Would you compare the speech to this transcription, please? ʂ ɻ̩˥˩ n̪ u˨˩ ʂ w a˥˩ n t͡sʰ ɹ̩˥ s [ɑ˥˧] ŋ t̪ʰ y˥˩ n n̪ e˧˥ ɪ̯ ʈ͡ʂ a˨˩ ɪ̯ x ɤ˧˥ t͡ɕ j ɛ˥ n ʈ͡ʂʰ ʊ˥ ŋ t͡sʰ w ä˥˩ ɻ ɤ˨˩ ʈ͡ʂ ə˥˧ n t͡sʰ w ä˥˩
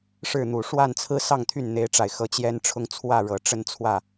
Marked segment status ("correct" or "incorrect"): correct